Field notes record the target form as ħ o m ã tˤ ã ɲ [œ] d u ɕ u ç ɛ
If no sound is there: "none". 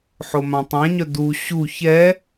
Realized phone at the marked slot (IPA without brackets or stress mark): œ